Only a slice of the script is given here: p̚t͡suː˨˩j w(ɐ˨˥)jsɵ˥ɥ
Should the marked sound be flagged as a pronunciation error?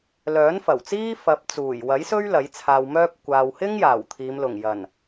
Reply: no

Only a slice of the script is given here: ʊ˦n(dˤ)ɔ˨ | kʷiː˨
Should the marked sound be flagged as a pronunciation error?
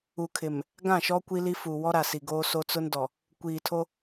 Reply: yes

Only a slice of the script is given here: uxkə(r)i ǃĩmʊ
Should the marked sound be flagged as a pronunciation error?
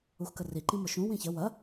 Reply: no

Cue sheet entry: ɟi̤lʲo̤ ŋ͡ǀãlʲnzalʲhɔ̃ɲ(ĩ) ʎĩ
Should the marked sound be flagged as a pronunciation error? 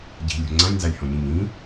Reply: no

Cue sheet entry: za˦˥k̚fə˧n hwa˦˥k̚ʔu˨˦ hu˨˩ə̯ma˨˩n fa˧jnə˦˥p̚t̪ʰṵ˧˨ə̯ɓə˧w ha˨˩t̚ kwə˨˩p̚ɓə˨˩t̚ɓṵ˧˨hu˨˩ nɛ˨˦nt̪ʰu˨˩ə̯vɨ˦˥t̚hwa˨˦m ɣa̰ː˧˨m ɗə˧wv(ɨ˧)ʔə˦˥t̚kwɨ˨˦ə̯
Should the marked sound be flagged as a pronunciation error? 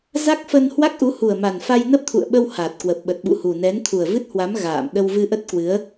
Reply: no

